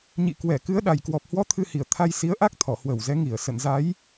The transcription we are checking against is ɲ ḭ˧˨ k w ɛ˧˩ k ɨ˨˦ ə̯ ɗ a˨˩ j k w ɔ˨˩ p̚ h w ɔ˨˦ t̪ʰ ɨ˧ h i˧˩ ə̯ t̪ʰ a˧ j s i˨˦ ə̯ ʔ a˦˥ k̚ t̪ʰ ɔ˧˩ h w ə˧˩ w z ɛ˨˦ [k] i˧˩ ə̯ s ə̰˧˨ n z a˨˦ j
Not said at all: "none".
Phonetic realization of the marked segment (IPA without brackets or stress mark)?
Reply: ŋ